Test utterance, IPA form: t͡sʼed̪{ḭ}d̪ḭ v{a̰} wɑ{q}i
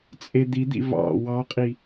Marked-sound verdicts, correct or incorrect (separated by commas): incorrect, incorrect, incorrect